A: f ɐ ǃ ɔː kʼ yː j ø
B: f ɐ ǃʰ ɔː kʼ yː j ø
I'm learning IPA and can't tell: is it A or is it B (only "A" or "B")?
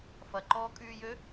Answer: A